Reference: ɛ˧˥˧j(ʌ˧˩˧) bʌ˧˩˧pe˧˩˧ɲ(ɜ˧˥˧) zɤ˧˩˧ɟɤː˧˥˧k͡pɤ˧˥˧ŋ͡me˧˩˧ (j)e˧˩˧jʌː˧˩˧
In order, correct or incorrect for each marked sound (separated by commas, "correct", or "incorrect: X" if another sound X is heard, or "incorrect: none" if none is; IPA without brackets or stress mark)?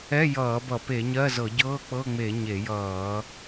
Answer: incorrect: ʌː˧˩˧, correct, incorrect: ɲ